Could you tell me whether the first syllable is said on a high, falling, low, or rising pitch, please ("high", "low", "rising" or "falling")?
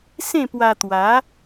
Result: falling